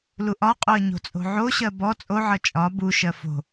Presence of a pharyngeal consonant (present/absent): present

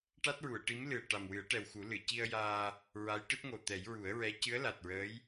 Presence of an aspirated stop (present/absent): absent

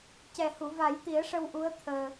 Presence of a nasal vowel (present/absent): absent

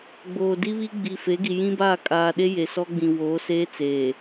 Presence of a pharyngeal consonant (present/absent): absent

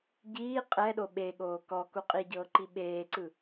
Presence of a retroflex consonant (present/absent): absent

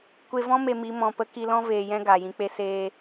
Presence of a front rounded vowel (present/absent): absent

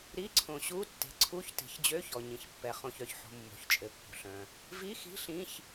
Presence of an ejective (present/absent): present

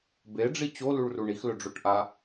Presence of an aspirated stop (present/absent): absent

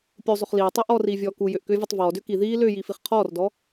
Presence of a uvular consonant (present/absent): present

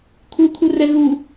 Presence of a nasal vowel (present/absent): absent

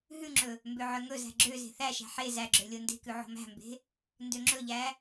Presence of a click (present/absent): present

